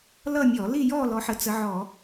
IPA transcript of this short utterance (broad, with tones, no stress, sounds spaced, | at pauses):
l ʌ˥˧ mʲ ɔ˧˩˧ l i˥˧ j ɔ˥˧ l ɔ˨˦ ħ ə˨˦ t͡s ə˨˦ ʕ ɔ˧˩˧